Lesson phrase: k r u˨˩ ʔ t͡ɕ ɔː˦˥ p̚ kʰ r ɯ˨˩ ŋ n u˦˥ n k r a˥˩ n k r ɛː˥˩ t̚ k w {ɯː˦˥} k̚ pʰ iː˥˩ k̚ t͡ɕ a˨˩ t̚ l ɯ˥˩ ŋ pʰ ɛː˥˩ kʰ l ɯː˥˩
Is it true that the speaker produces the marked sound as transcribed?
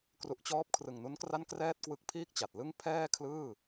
no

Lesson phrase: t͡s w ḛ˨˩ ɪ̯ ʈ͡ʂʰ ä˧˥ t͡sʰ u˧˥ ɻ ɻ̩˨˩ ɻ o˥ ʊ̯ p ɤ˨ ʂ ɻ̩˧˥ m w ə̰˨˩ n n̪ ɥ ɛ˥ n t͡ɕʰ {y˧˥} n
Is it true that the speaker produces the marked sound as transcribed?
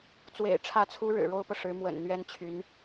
yes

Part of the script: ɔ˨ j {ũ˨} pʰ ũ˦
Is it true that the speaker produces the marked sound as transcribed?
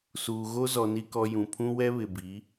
yes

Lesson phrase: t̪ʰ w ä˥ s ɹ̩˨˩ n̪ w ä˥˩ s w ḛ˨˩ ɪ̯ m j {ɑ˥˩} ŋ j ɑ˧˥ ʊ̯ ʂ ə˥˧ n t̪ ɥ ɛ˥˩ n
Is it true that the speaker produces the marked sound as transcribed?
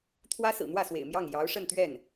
yes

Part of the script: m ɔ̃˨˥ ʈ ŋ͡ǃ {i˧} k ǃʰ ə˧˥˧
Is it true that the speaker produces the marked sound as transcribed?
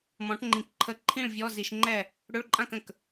no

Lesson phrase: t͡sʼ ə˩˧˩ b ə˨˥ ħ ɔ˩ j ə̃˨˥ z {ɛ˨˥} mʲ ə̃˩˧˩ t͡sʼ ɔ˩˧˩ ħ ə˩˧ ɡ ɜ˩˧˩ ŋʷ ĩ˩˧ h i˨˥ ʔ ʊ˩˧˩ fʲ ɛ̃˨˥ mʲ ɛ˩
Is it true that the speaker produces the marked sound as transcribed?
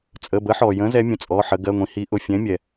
yes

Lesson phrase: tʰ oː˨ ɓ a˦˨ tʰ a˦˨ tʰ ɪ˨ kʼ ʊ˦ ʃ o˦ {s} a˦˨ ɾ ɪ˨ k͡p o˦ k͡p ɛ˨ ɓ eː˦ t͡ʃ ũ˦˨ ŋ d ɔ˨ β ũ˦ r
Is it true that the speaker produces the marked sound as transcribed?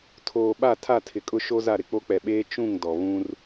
no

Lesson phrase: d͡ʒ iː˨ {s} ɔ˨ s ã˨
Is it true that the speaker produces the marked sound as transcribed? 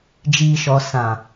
no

